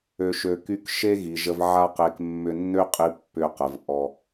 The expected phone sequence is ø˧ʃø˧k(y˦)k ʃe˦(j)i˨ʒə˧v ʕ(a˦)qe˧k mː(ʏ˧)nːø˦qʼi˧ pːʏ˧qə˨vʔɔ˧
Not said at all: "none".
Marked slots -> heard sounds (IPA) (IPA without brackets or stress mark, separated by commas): y˦, ɣ, a˦, ʏ˧